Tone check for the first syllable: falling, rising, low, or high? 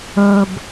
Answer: low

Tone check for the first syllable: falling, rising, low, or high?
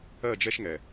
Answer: falling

